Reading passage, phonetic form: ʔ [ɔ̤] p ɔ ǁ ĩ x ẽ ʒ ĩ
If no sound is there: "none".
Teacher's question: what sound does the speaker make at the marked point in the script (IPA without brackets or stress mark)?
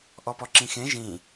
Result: ɔ